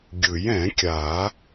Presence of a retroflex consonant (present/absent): absent